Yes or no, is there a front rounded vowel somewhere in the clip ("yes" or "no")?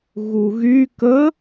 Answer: yes